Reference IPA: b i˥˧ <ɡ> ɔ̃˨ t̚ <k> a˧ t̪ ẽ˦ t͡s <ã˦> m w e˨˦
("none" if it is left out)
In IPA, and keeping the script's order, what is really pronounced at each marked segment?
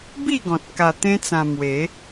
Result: ɡ, k, ã˧

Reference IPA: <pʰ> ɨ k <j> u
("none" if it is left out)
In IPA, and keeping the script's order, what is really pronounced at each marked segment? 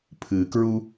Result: pʰ, ɹ

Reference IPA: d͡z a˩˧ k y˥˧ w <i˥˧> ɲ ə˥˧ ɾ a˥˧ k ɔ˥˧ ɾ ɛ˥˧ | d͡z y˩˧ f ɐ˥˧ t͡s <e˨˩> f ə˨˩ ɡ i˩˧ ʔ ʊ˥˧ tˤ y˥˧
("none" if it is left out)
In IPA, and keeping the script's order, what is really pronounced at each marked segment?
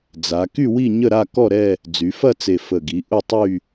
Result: i˥˧, e˨˩

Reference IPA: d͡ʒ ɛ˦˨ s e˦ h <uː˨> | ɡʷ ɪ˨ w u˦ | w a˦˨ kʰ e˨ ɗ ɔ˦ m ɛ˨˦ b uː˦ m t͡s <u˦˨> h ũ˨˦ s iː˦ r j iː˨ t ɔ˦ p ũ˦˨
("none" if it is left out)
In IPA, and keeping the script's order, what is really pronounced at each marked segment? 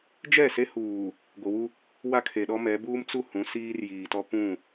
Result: uː˨, u˦˨

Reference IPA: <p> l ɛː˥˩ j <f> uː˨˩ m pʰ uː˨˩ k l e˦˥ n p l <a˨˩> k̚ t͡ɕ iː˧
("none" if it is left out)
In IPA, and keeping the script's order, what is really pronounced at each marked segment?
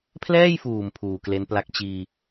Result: pʰ, f, a˦˥

